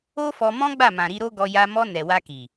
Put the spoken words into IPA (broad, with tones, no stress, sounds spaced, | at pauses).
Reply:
o˦ f ɔ˧ m ɔ̃˦ ɡ͡b a˦˨ m ã˨ ɾ i˧ ɾ o˦ ɡ ɔ˧ j a˧ m ɔ˧ n ɛ˨ w a˧ k i˨